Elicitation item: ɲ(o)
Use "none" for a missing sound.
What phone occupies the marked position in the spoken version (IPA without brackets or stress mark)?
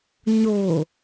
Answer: o